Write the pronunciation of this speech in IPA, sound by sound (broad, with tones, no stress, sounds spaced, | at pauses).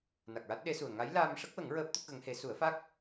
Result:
n a˨˩ k̚ ɹ a˦˥ t̚ ɗ e˧˥ s u˨˩ ə̯ ŋ a˧˥ j l aː˧ m ʂ ə˦˥ k̚ w ə˨˩˦ ŋ ɹ əː˦˥ p̚ t̪ ə˦˥ k̚ ɣ ə˧˥ ŋ h e˧˥ s u˨˩˦ ə̯ f a˦˥ k̚